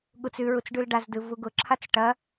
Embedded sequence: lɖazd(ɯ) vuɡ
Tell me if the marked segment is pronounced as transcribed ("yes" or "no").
yes